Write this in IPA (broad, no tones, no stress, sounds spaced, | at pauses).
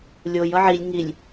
lʲ o j ʌ ʕ i lʲ ŋ i lʲ